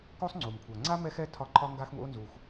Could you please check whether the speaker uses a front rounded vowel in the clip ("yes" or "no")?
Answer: no